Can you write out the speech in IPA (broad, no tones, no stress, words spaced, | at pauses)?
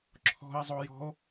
ǁʰɔ̤e̯zˤojɔ̤o̯